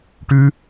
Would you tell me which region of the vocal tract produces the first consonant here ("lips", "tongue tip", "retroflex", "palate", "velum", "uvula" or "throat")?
retroflex